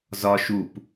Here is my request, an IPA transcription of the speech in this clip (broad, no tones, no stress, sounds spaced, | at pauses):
z ɒ ʃ u p